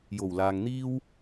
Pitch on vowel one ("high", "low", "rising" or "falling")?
low